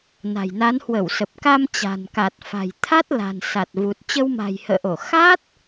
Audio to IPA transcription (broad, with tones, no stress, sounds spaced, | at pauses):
n a̤˨˩ j n a˨˦ n h w ə˧˩ w s ə˨˩ p̚ k a˧ m t͡ɕ a̤˨˩ n k a˨˩ t̚ f a̤˨˩ j t̪ʰ a˦˥ t̚ l a̤˨˩ n s a˨˩ t̚ v u˨˩ t̚ t͡ɕ ə˧ w m a̤˨˩ j h ə̰ː˧˨ ʔ o˧˩ x a˦˥ t̚